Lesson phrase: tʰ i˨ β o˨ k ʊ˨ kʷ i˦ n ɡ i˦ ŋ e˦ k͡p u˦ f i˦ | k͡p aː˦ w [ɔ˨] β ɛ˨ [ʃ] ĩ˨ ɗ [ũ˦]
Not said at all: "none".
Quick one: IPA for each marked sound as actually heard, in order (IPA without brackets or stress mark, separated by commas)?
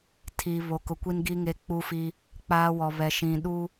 ɔ˨, ʃ, u˦